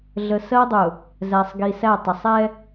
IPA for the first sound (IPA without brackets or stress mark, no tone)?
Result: ɮ